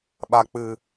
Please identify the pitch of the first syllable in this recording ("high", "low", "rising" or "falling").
low